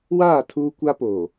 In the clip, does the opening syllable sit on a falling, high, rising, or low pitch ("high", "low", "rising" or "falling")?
falling